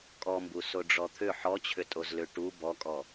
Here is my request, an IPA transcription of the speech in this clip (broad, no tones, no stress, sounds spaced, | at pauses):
kʼ ɔ m b u s o ɖ͡ʐ ɔ t̪ʰ ʏ ħ ɔ t͡ɕʰ ʏ tʼ o z l ʏ ʈ u b ɔ kʼ ɔ